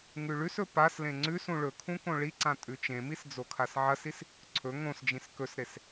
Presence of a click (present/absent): present